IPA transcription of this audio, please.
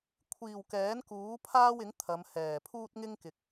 kʷʰ iː˨˩ w k ɛː˨˥ n k uː˨˥ pʰ aː˥ w ɪ˨˥ ŋ t̪ʰ ɐ˨˧ m h ɛː˨˩ pʰ uː˥ t̚ ŋ ɪ˥ ŋ k ɪ˨ k̚

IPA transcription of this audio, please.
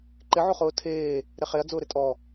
ǃ ɪ ʕ o χ ʊː tʰ eː | ɾ e χ e ɐ̯ d͡z ʊː ɾ ɪ tʼ ɔ

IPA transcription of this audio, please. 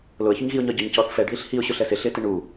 l ʊ ə̯ ç ʊ ɲ ɣ i ʊ̯ ɲ ɒ ɟ ɔ ɲ c ɔ θ f ɛ ɖ ð i ɬ h i ʊ̯ ɕ ʊ ɬ ɛ s ɪ ɬ ɪ t ɪ ɳ u

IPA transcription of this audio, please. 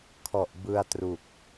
kʰ ɔ˨˩ ʔ b ɯ˧ a̯ t r u˨˩ k̚

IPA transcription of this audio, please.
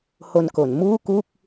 h o˧ n k o˩˦ n m uː˥˩ k u˥˩ k̚

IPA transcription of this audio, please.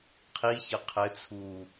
qʰ i ç ɐ qʰ ɘ t͡sʰ uː

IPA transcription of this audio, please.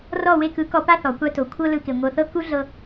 r ɔ˦˨ w e˧ k ɯ˨˦ k ɔ˧ p a˦ θ ɔ˨ kʷ a˦ t o˨ kʷʰ ɤ˦ l ɯ˧ k e˨ ŋʷ ɤ˨ θ ɤ˦ k u˦ ɮ ɤ˧

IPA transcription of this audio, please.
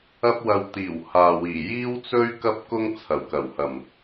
ɐ˥ p̚ w ɐ˧ w t̪ iː˨˩ w h aː˨ w iː˨˩ j iː˥ w t͡s ɵ˥ ɥ k ɐ˥ p̚ k ʊ˥ ŋ t͡sʰ ɐ˨˩ w k ɐ˨˩ w h ɐ˨˩ m

